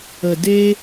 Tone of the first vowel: low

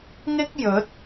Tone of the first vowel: high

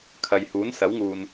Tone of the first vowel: low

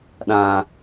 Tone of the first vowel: low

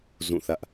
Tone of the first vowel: falling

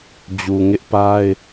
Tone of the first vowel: low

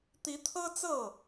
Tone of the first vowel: rising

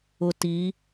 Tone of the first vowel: low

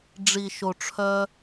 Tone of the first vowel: low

